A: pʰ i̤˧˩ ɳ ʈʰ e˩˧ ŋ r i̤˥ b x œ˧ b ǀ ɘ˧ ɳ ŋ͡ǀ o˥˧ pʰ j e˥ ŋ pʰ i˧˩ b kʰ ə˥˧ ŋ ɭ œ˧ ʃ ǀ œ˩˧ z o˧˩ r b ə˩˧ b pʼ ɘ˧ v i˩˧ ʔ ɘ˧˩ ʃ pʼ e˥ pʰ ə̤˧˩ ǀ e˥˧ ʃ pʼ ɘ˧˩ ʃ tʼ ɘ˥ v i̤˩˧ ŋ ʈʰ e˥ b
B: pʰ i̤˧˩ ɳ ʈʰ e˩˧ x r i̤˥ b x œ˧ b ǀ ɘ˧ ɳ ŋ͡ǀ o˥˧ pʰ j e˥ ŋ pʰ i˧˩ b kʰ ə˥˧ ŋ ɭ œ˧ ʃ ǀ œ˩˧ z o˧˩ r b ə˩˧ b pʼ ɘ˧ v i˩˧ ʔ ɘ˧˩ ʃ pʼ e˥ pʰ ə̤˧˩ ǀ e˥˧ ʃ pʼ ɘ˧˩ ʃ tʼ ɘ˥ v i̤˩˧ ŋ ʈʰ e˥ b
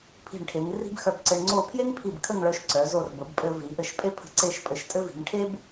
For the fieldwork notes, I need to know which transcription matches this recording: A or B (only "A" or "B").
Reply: A